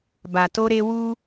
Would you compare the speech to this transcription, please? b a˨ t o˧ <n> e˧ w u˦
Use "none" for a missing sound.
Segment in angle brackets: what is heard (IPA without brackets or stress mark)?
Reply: ɾ